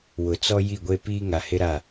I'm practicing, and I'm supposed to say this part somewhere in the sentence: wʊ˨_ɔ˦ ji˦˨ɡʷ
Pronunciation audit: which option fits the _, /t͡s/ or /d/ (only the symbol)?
t͡s